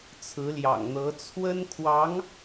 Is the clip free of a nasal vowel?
yes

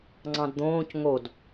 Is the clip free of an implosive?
yes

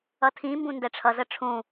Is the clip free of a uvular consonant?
yes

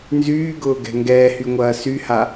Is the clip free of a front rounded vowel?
no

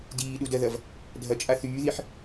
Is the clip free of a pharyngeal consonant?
no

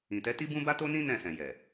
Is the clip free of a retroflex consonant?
yes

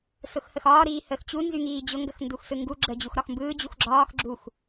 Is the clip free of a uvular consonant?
yes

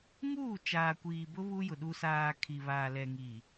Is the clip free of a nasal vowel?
yes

